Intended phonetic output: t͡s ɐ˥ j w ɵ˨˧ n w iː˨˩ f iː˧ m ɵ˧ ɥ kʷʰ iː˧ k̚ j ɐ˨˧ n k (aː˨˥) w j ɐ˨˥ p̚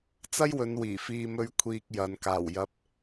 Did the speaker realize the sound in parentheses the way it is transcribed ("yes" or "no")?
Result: no